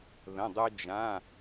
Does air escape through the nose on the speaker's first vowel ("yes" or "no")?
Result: yes